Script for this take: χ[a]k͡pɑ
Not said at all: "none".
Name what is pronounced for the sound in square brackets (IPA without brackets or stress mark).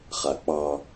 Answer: a